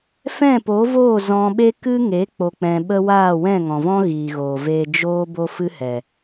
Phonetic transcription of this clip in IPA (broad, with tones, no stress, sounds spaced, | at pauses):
f ɛ̃˦˨ p o˨˦ v oː˦˨ z ɔ̃˧ ɓ e˦ k ɨ˦ ŋ e˨˦ k͡p o˨ k͡p ɛ̃˨ ɓ ə˧ w aː˦˨ w ɛ̃˦˨ ŋ ɔ̃˨ v ɔ̃˦ ɣ iː˨ ɣ oː˨ v eː˨ d͡ʒ oː˦ b o˦ f ɨ˦ h ɛ˨